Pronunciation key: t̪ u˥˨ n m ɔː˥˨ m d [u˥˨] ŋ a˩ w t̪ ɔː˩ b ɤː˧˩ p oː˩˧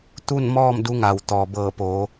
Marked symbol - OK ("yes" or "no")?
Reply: no